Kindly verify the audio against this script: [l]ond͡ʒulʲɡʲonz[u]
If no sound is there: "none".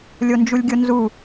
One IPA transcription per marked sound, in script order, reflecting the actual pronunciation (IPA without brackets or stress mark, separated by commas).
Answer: lʲ, u